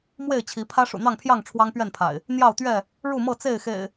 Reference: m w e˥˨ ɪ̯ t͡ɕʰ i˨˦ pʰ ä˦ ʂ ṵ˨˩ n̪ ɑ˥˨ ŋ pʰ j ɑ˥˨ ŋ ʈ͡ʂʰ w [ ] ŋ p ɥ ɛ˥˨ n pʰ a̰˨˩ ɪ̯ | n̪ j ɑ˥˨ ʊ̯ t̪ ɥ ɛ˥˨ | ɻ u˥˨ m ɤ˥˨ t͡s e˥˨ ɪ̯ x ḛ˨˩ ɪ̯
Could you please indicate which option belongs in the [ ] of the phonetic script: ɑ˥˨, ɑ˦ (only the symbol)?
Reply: ɑ˦